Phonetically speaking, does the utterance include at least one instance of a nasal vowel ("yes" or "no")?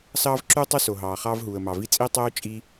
no